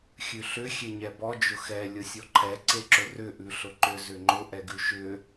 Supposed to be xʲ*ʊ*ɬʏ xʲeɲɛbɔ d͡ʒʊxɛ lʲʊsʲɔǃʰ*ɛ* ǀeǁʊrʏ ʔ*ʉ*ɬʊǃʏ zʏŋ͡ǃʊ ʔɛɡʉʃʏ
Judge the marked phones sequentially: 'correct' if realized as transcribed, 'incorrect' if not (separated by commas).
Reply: incorrect, correct, correct